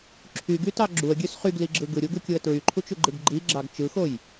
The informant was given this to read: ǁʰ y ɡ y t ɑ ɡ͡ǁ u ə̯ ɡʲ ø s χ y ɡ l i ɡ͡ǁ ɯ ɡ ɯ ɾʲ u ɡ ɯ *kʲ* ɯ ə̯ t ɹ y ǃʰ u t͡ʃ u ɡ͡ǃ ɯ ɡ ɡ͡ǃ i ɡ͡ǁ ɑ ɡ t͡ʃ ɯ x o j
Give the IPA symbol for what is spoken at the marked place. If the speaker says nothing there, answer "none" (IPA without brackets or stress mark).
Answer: kʲ